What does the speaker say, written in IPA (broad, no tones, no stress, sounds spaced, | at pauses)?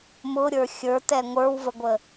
m ʊ ɾʲ ə˞ xʲ ə˞ t ɛ ŋʷ ə˞ w v ə ɡʷ ə